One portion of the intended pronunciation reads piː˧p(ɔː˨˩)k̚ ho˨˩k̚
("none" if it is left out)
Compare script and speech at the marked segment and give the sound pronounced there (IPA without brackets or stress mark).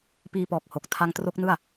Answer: ɔː˨˩